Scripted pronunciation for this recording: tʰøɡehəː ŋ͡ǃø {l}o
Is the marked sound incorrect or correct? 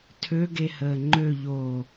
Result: incorrect